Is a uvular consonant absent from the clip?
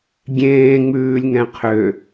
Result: no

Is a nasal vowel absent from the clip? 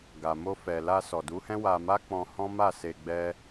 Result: no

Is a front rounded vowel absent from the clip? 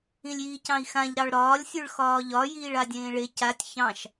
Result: yes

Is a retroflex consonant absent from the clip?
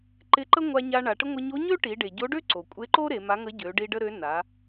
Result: no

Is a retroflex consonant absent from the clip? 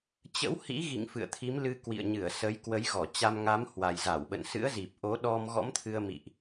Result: yes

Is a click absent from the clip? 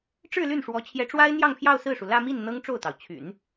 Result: yes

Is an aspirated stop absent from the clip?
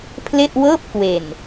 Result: no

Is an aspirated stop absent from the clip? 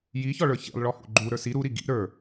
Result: yes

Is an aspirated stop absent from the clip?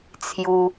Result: no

